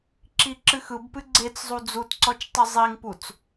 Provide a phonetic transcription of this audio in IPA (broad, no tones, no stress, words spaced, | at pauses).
ǁiǁɨxɯbpɨ ɡ͡ǀet͡szˤu d͡zutǀɔt͡ʃ tˤɨzˤiŋput͡s